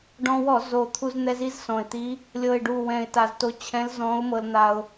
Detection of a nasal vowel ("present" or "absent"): present